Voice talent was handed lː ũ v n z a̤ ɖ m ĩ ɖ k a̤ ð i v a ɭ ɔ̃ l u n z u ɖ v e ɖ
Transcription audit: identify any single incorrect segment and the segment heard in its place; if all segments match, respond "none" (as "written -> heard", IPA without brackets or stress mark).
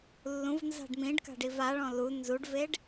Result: ð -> ɖ